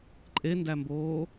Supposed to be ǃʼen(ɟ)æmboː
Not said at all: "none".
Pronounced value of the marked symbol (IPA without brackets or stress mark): d